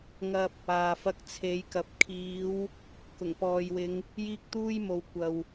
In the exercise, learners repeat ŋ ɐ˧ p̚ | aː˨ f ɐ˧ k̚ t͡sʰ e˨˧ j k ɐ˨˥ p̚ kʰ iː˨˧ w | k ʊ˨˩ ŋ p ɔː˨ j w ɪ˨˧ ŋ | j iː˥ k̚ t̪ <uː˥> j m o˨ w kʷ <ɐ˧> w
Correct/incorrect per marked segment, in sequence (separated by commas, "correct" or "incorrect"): correct, incorrect